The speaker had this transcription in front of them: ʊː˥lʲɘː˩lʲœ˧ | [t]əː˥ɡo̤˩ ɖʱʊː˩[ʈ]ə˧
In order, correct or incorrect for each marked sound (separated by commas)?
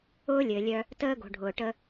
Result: correct, correct